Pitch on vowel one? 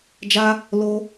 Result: high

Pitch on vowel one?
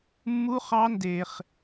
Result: high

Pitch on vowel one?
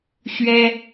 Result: high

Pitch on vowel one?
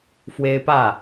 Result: high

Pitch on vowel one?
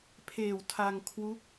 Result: low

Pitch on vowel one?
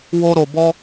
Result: high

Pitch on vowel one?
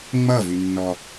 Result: falling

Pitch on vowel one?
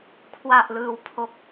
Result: low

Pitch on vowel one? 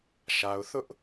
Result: low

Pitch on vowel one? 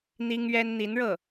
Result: high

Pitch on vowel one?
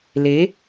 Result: rising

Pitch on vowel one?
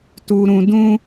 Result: low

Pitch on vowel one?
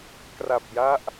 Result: low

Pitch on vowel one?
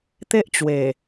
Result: high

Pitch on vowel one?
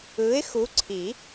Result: rising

